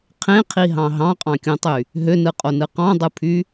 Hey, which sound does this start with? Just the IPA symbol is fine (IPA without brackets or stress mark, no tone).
qʰ